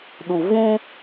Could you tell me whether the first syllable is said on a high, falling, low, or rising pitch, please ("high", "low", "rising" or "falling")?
low